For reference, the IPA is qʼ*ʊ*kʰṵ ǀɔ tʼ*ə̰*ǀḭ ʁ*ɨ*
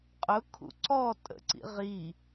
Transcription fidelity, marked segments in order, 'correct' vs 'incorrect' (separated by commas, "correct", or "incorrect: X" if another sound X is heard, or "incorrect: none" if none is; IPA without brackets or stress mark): correct, correct, incorrect: i